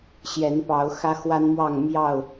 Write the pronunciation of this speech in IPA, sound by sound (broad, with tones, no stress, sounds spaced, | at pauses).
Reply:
ɕ j ɛ˨˦ n p ɑ˨˦ ʊ̯ x ä˦ x w a˦ n m w ɑ˥˨ ŋ m j ɑ˥˨ ʊ̯